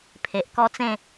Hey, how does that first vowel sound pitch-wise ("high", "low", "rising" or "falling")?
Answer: low